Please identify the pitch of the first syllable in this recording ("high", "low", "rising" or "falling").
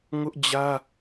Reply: high